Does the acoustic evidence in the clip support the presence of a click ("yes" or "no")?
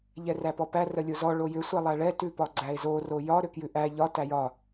yes